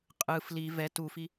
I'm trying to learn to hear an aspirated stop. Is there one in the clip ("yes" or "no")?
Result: no